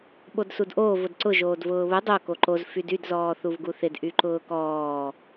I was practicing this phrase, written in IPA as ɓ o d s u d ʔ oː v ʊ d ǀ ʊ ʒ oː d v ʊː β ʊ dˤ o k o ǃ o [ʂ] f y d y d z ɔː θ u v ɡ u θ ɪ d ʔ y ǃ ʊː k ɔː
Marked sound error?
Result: yes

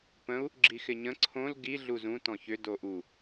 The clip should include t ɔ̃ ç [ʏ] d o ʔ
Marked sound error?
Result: no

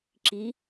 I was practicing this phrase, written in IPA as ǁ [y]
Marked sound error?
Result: yes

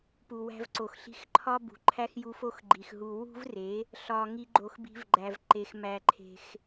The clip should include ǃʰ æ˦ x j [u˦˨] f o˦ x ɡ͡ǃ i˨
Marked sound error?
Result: yes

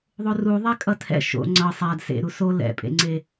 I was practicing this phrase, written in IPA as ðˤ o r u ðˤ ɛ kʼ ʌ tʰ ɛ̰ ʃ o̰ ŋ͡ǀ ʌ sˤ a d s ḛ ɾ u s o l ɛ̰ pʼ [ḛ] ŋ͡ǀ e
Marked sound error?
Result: no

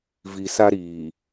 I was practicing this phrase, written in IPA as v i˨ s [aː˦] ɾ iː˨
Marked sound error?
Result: yes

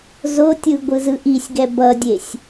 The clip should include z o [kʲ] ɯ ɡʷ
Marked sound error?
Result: yes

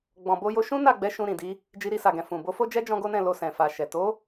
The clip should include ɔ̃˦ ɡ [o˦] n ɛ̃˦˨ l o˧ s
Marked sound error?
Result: no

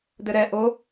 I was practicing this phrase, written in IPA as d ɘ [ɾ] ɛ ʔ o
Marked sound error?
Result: no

